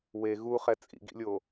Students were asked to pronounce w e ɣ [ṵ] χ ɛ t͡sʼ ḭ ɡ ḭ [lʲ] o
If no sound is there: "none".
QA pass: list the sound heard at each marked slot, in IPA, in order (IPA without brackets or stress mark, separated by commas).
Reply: u, lʲ